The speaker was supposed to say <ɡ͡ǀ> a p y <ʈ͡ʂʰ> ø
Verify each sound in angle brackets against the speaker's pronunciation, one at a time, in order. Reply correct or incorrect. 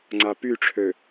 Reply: incorrect: ŋ͡ǀ, correct

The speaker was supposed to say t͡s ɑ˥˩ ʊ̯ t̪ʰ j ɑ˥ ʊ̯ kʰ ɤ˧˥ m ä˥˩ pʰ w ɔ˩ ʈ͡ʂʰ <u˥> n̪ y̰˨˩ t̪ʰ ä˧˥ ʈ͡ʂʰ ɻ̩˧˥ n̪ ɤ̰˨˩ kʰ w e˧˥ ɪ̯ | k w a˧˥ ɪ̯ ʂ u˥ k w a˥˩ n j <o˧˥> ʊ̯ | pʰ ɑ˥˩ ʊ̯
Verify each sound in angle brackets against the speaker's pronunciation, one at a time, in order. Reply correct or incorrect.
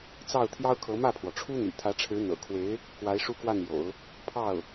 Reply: correct, incorrect: o̰˨˩˦

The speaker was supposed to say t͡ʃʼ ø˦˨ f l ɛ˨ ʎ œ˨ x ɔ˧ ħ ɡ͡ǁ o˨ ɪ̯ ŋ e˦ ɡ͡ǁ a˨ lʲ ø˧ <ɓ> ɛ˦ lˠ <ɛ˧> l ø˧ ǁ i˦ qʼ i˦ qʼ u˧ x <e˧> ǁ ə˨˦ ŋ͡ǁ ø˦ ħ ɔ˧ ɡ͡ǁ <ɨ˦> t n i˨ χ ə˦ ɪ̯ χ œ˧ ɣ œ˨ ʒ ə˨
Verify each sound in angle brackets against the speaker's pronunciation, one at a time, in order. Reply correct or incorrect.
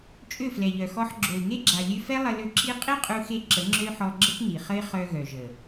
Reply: incorrect: f, incorrect: ə˧, correct, incorrect: ə˦

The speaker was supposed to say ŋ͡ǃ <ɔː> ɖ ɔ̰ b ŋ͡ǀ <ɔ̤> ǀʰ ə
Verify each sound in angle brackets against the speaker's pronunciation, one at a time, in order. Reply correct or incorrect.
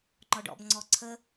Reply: incorrect: ɔ, incorrect: ɔ

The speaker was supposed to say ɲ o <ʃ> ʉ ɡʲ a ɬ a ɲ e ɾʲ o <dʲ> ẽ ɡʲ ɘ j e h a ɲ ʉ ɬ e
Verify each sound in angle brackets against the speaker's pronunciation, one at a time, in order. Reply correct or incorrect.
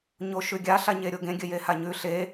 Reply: correct, incorrect: ɡ

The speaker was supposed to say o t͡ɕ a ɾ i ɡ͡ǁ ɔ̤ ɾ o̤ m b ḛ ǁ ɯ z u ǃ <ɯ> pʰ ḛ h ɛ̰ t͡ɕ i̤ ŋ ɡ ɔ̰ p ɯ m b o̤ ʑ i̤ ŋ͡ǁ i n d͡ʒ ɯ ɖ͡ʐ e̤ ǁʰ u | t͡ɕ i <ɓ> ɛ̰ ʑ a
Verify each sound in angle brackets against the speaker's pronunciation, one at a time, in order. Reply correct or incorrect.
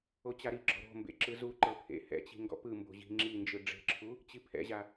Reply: incorrect: ɤ, incorrect: pʰ

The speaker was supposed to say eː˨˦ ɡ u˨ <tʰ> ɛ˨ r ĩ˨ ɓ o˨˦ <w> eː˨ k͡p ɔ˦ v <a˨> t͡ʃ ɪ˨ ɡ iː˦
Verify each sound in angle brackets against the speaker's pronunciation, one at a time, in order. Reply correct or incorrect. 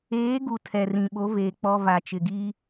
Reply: correct, incorrect: v, correct

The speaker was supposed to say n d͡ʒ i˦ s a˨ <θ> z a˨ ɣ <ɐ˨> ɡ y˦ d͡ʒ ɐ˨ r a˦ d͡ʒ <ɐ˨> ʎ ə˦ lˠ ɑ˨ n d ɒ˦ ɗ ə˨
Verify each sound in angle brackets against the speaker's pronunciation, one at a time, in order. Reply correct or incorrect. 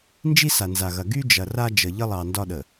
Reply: incorrect: n, correct, incorrect: ə˨

